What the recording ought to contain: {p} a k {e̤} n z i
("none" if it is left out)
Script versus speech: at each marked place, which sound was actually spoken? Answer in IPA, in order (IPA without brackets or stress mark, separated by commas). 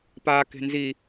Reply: p, e̤